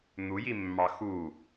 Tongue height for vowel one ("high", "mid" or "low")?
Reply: high